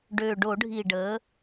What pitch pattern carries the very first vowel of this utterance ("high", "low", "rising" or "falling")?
low